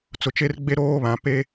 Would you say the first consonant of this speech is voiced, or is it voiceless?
voiceless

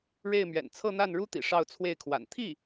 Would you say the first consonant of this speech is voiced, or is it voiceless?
voiced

